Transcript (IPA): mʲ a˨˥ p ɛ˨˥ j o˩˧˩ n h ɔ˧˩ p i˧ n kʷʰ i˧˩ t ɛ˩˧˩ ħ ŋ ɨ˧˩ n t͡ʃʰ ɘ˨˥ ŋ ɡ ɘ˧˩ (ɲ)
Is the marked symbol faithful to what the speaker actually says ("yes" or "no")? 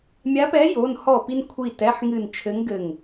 no